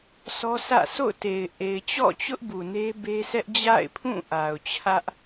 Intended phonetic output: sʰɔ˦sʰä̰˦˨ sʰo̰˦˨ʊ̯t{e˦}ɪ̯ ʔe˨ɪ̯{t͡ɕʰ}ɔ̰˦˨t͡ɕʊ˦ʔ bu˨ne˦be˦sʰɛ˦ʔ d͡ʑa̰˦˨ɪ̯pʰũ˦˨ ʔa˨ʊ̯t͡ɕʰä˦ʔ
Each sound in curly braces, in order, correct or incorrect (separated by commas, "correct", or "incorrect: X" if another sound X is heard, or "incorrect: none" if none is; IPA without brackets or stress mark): incorrect: e˨, incorrect: t͡ɕ